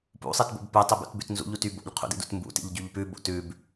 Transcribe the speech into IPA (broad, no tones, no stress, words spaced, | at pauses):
pṵ sˤitbo̰bpʉ tˤibṵtbʉtnzṵʎ utybo̰ʎ qʰṵdḭdṵtmbṵ tḭʎɟyʎpʉ bo̰tʉb